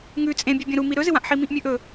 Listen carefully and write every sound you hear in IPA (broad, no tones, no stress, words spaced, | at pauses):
ŋʉ t͡sʼẽbʲʉbʲɐ̃ ɾumi ɾɵzɨwãʔħi mĩʔmʲʉʔɵ